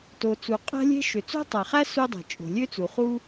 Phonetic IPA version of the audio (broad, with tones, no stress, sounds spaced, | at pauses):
t o˩ t͡s u˩ qʼ æ̤˥ lʲ e̤˥ ʃ ø˩ t͡s o̤˥ tˤ æ˩ χ æ˥ s u˥ dˤ e̤˩ t͡ʃʼ o̤˩ lʲ ø˥ t͡s u˩ χ u˥